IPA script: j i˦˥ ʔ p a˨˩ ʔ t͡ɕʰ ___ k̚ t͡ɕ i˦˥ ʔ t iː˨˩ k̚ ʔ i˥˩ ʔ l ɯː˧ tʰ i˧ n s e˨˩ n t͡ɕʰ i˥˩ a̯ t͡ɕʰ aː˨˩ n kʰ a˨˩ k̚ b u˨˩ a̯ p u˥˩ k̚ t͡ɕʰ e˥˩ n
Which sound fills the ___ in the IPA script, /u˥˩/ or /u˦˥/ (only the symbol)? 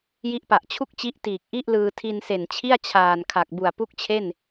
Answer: u˥˩